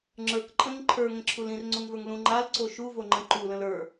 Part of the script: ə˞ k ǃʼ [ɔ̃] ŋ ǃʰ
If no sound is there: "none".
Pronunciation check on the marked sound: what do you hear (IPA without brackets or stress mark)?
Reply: ə̃